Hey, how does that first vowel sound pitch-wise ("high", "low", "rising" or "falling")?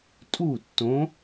falling